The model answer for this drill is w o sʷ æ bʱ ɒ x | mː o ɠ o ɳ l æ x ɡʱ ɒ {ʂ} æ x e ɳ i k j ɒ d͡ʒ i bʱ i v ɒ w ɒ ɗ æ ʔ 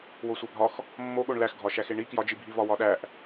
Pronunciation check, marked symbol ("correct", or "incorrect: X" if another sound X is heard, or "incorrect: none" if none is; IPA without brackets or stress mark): incorrect: ʃ